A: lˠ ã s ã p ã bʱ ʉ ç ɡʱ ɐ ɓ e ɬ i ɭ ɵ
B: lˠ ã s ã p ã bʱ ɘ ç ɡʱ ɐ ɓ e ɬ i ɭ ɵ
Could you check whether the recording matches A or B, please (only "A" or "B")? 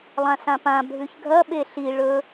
A